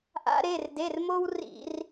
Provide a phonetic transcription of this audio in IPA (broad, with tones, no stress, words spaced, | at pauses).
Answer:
ʔa̰˦ɾe˩˧˩r de˩˧˩r mo˦wrḭ˧˩˧r